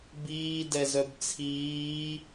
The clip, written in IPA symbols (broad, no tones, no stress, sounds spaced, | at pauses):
b iː d ɛ z œ b t͡sʰ iː